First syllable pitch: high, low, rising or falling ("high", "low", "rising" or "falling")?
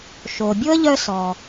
low